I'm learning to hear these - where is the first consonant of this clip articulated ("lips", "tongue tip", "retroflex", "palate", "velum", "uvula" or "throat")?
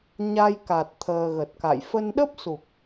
palate